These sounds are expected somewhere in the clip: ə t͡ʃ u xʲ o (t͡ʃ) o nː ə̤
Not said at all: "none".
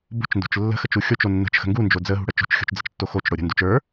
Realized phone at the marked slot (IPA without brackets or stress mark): t͡ʃ